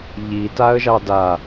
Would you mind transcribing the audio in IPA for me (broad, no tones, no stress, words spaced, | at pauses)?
ʎi taə̯ʒɑda